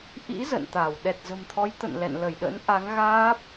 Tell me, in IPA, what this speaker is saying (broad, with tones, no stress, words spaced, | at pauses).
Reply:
ʔḭ˧˥ zə̰˧˨nt̪a˧˩w ɗɛ˨˩t̚zə̤˨˩mt̪ʰɔ˨˦j t̪ə̰˧˨nlɛ̰˧˨nlə˧˩jɗə̰˧˥n ʔa˨˦ŋɣaː˦˥p̚